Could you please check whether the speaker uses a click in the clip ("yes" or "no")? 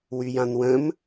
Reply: no